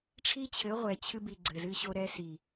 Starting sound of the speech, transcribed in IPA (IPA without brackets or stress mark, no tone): ʈ͡ʂʰ